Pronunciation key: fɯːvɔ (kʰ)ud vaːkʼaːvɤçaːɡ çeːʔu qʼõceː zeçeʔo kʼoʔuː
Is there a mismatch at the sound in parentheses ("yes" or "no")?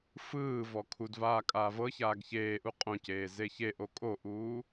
no